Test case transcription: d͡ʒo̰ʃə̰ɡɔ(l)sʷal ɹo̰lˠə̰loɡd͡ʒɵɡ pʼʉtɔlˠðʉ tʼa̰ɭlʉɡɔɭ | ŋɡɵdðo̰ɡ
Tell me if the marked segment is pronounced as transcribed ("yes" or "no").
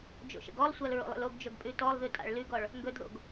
no